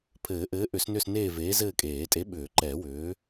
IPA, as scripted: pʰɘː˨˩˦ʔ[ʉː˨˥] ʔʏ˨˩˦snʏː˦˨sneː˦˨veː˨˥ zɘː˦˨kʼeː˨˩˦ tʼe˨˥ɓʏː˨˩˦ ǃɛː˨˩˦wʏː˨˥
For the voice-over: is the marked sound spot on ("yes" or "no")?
no